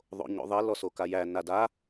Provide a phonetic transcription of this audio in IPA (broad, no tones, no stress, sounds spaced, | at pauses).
ðˤ o̰ ɲ o̰ ðˤ i l ɔ s o k a j æ n a d a